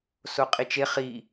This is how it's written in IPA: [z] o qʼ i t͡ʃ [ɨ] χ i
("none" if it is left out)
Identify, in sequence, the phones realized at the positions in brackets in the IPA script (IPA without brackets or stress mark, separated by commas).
s, e